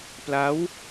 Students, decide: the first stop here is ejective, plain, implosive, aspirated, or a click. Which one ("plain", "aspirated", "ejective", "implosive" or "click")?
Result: plain